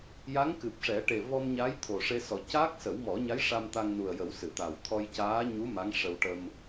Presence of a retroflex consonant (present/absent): present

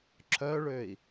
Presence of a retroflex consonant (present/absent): present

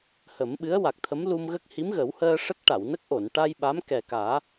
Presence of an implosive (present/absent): present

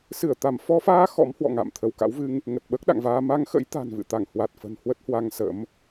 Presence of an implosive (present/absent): present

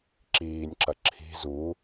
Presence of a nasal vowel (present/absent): absent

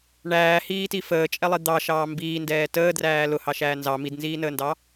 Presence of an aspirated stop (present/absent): absent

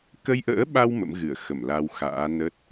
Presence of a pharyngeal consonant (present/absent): absent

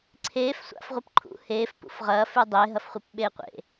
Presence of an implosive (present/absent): present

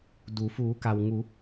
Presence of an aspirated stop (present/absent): absent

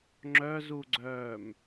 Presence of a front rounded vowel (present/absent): present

